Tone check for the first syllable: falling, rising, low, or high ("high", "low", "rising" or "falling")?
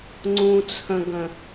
high